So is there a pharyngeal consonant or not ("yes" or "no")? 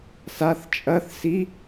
no